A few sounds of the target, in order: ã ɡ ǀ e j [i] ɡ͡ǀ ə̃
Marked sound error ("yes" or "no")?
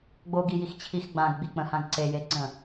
yes